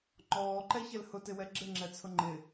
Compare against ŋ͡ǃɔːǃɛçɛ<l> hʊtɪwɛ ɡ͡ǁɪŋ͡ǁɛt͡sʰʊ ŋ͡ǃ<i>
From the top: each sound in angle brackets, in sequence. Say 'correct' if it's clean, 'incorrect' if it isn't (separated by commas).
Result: correct, incorrect